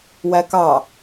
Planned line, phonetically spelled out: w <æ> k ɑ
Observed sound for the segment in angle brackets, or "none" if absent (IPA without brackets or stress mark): æ